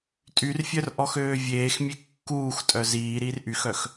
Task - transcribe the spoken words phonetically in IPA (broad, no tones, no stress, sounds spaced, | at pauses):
tʼ y r fʲ œ r ʔ ɔ x øː vʲ eː x mʲ e kː uː x tʼ œ z iː ɾ iː r ʔ y x œ x